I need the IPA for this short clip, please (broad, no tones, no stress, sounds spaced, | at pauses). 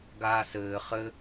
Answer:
ɡ aː s ɘː χ ɘ